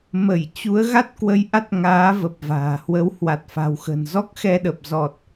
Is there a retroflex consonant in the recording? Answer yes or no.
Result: no